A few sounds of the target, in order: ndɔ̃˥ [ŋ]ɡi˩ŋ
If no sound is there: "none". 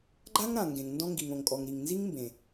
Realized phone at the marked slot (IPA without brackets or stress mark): ŋ